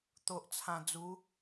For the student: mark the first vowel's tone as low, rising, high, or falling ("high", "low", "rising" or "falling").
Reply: low